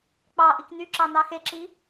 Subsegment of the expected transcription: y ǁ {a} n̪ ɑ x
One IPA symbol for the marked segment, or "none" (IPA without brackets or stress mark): ɑ